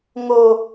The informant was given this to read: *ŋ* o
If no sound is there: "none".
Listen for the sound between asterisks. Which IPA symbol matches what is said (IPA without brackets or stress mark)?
ŋ